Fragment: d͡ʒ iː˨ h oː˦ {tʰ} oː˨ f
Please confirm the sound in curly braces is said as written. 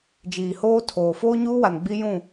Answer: yes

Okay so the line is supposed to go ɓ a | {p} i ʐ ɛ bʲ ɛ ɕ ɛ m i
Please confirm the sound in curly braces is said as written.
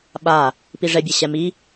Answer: yes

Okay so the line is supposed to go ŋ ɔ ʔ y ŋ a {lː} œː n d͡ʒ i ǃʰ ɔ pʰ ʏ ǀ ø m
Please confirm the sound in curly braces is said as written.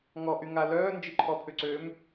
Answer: no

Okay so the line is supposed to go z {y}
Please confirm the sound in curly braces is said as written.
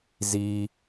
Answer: no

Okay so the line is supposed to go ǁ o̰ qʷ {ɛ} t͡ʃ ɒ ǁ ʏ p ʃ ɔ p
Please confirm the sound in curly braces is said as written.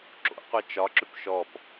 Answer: yes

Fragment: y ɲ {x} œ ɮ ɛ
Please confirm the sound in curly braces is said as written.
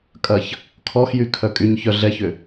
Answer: no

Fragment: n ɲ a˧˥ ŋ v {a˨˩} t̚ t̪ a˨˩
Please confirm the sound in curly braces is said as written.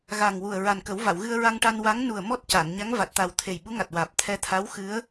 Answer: yes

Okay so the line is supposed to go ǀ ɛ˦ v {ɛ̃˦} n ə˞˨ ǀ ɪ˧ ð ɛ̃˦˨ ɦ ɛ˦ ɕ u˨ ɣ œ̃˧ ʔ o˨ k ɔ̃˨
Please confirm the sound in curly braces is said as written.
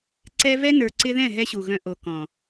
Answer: no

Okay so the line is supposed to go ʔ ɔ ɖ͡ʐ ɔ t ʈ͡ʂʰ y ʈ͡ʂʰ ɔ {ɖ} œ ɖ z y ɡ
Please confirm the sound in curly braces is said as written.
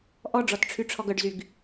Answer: no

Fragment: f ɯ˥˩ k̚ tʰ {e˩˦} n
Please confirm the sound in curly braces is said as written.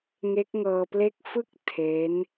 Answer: no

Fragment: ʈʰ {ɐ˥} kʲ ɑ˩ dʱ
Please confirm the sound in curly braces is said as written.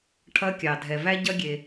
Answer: yes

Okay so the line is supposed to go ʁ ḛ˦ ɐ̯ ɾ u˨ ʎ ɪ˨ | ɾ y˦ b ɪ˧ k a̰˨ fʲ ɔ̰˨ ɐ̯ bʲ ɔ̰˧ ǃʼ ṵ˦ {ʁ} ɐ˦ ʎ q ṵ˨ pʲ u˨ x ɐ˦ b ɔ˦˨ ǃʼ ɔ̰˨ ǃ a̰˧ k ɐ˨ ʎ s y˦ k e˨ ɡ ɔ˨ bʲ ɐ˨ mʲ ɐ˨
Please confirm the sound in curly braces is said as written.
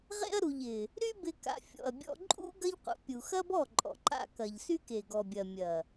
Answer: no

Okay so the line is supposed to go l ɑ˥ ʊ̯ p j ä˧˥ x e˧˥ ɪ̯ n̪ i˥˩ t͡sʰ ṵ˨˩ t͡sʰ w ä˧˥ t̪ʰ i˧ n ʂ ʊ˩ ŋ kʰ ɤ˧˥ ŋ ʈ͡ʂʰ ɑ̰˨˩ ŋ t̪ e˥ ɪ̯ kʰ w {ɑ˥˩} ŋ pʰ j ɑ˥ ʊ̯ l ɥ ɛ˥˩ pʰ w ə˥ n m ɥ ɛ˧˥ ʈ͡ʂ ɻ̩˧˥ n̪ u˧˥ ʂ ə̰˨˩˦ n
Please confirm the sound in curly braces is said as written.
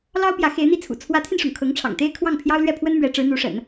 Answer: yes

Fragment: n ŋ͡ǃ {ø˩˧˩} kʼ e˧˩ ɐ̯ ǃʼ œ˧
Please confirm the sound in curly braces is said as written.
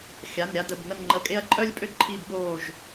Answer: no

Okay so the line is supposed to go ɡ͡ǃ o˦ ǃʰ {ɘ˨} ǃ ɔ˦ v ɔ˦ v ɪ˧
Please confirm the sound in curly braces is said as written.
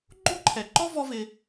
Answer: no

